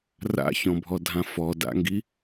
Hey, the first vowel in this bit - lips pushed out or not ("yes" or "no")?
no